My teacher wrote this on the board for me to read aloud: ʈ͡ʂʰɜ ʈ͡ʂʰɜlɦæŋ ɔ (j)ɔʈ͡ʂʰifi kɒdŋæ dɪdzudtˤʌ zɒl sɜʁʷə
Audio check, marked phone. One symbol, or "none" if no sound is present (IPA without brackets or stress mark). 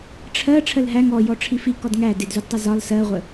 j